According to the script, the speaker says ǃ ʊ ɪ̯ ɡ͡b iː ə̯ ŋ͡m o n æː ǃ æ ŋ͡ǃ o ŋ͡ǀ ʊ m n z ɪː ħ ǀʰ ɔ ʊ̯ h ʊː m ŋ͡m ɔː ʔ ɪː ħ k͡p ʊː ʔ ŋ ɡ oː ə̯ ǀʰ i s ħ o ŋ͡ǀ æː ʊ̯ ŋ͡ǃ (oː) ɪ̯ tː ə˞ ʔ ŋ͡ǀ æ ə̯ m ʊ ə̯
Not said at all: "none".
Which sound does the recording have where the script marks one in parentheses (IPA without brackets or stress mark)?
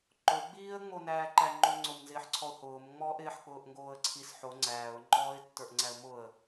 ɔː